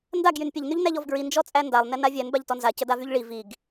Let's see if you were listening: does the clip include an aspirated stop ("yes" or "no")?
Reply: no